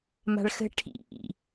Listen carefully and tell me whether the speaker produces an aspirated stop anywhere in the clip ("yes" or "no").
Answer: yes